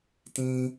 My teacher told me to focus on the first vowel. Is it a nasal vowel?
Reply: yes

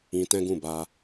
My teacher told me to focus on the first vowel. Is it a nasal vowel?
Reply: yes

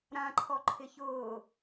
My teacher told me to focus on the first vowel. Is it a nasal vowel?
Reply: yes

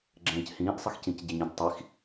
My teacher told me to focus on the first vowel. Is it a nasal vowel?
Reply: yes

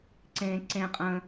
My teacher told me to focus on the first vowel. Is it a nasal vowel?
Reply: yes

